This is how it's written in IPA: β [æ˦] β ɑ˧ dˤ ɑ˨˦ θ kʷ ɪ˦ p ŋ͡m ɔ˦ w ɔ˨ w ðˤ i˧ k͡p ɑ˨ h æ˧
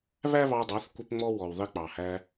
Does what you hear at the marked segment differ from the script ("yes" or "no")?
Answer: no